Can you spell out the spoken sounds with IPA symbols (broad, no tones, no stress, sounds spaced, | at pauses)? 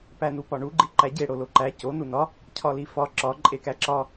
p æ n u p ɒ ɳ u ɡ͡ǃ i ǃ æ ɟ e ɽ o l o ǃ æ c o n u n ɒ | cʰ ɒ l i f ɒ ǁ ɒ ǃʼ e k æ ǁ ɒ